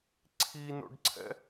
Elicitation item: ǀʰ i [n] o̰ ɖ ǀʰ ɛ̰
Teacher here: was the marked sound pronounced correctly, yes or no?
yes